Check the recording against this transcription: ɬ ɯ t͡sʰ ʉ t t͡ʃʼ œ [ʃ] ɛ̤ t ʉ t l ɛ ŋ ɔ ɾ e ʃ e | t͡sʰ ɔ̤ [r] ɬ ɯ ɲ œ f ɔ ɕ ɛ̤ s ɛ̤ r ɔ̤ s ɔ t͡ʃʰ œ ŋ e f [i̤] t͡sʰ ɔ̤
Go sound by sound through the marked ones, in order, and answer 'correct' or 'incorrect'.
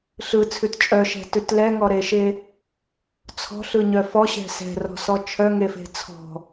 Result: correct, incorrect, incorrect

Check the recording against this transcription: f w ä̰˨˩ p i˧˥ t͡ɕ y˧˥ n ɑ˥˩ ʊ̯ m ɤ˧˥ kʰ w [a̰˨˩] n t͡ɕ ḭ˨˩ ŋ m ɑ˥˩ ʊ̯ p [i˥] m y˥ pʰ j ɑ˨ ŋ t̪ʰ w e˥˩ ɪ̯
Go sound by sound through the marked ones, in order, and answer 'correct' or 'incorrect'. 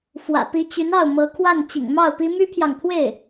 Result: incorrect, correct

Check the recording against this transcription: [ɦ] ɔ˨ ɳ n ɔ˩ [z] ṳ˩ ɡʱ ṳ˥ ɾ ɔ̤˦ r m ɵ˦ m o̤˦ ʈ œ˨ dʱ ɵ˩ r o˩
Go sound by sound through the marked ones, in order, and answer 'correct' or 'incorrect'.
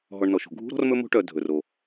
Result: correct, incorrect

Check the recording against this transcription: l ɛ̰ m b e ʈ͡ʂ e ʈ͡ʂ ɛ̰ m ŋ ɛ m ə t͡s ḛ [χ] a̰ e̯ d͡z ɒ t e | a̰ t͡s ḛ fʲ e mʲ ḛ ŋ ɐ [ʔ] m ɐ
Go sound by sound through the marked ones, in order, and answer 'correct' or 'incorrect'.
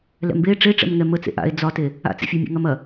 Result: incorrect, incorrect

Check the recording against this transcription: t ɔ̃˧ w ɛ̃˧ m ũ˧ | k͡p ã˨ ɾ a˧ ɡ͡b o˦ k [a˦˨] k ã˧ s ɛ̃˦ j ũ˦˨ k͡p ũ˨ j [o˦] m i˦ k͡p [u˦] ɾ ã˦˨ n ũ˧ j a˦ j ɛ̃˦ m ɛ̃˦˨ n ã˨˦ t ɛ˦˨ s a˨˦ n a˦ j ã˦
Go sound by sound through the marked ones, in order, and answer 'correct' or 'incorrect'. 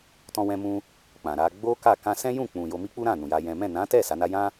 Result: correct, incorrect, correct

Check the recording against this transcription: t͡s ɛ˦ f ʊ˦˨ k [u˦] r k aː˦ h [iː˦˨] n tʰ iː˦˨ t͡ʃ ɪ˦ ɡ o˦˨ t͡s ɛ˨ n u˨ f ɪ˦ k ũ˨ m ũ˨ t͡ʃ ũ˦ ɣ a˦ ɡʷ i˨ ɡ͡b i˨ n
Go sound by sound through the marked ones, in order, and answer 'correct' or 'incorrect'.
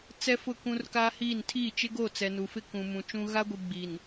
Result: incorrect, correct

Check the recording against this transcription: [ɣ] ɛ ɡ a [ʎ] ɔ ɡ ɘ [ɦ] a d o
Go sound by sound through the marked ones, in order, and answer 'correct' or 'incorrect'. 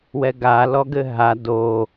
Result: incorrect, incorrect, correct

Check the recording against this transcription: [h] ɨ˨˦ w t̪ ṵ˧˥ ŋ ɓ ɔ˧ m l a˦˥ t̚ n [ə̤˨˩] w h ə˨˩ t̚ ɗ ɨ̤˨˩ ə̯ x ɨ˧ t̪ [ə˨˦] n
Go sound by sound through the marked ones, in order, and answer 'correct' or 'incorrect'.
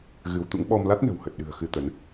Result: incorrect, correct, correct

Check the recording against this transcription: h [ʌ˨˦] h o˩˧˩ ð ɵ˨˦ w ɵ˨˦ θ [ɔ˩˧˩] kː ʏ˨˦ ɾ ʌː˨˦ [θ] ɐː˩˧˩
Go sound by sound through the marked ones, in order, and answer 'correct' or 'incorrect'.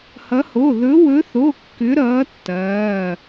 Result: correct, incorrect, incorrect

